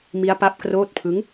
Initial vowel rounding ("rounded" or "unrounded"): unrounded